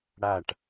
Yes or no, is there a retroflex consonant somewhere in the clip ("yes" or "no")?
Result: yes